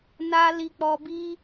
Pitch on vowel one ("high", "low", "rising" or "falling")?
high